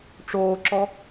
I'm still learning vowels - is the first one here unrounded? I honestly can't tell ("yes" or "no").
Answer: no